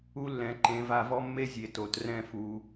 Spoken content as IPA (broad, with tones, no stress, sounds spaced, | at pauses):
u˧ lː ɛ̃˩˧ ǃ ẽ˩˧ v a˧ v ɔ˥ mː e˥ zʲ e˩˧ t o˩˧ t r ɛ̃˥˧ f u˧